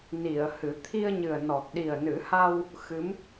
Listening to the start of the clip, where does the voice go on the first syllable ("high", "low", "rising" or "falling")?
low